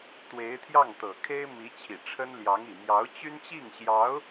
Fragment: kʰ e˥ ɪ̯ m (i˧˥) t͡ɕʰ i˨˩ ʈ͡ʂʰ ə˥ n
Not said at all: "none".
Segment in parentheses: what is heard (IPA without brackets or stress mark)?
i˧˥